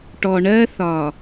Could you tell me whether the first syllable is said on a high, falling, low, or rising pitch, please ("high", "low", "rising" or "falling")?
low